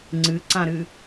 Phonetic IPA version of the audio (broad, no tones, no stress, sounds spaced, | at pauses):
ŋ͡ǀ ɨ ǀ ã ɾ ɨ